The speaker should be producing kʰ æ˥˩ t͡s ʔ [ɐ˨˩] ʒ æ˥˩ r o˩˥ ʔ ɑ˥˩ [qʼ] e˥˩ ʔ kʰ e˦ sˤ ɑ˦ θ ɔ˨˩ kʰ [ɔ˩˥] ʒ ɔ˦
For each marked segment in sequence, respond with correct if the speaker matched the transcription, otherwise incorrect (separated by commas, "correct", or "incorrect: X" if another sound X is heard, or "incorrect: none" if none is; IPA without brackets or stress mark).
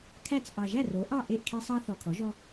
incorrect: ɑ˨˩, incorrect: ʔ, correct